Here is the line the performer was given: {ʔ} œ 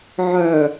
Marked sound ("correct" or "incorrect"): incorrect